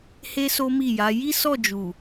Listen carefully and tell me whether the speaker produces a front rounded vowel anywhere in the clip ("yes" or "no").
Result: no